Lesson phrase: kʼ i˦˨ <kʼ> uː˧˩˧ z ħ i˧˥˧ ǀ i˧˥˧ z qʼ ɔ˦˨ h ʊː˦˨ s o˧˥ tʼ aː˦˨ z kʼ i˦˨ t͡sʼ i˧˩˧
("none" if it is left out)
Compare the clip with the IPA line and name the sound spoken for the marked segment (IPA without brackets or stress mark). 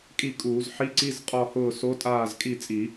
kʼ